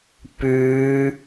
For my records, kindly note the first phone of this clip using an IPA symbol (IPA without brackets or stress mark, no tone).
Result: p